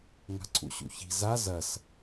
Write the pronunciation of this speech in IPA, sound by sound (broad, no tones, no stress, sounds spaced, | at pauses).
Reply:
ŋ a̤ ǀʰ ṵ ɕ ṵ ç i̤ z a z ɐ s